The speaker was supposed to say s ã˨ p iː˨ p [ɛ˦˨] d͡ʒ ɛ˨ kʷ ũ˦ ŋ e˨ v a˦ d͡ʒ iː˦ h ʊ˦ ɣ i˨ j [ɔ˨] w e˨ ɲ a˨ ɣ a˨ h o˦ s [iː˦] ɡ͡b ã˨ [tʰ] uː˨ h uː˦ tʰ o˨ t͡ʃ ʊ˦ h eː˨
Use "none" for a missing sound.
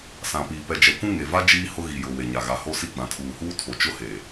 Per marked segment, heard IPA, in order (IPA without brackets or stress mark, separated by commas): ɛ˨, ʊ˨, i˦, tʰ